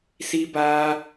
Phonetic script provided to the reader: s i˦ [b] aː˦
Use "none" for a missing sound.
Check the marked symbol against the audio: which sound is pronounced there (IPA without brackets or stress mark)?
b